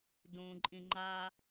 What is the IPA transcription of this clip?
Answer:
d ũ ǃʼ ĩ ŋ͡ǃ a

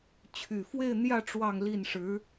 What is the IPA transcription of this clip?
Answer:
t͡ɕʰ y˨˩ f w e˥˧ ɪ̯ n̪ j ä˥˧ ʈ͡ʂ w ɑ˥˧ ŋ l i˥˩ n ʂ ɻ̩˧˥

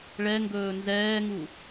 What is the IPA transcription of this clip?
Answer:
ɭ ɛ ŋ ɡ ɵː n z ɛː ŋ u

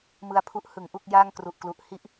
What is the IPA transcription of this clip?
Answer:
m ɯ˧ a̯ pʰ u˦˥ ʔ h ɯ˩˦ ŋ ʔ u˥˩ k̚ j aː˥˩ ŋ k r u˨˩ ʔ k l u˨˩ ʔ h i˥˩ ʔ

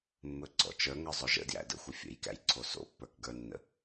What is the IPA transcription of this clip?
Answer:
mː ɵ ɡ͡ǀ ɔ̰ t͡ʃ ə˞ ŋ ə˞ zˤ ɵ ʒ ə̰ d j æ̰ d ə̰ xʷ ɪ fʲ ə̰ j k æ̰ j ǀʰ o s o̰ pː ə˞ k ɡ ə˞ nː ə̰

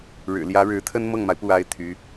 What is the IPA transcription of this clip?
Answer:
ɻ ɻ̩˨˩ l j ä˧˥ ɻ ɻ̩˧˥ t̪ʰ ə˥ n m ɤ˥˩ ŋ m a˩ ɪ̯ p u˥˩ a˥ ɪ̯ t̪ʰ y˧˥

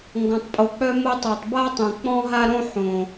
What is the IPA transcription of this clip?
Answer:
ŋ ɡ ɔ̃˨ tˤ pʼ o˨ k͡p œ˦ m o˧ tˤ a˨ tˤ b a˦ tˤ õ˨ k͡p ɔ̃˦ ɦ a˦ ɾ õ˦ ħ õ˨

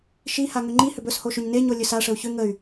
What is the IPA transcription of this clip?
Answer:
ʃ i h a ŋ ʏ ŋ͡ǃ i h ʏ b ɵ s h o ʃ ʏ ɲ n e ɲ o lʲ ɵ s a ʂ ə u̯ ç ʏ ŋ ə y̯

